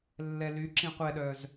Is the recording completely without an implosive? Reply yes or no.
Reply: no